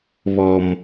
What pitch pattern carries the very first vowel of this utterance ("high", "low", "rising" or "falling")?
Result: high